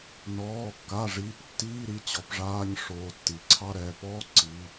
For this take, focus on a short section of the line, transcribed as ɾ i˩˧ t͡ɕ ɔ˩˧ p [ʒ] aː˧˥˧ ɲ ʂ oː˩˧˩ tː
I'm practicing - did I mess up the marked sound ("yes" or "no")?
yes